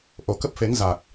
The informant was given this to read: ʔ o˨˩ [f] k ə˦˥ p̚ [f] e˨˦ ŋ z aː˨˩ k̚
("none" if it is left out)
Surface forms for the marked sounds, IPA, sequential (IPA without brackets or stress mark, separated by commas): none, f